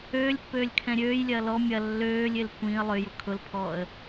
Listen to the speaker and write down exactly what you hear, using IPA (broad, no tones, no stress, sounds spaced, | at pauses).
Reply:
øː lʲ pː øː lʲ kʰ ɛ̃ ɾʲ øː j lʲ ɐː l ɔ mʲ ɐ lː øː lʲ ɪ l kʷ ĩ ə̯ lˠ ø j ʊ kʰ ʊ l pʰ ɔː ə̯